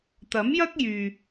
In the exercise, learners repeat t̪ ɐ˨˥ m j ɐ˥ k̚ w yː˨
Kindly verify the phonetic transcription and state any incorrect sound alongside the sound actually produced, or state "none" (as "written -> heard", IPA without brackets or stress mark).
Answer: w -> j